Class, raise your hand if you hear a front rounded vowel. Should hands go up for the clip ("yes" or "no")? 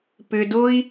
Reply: yes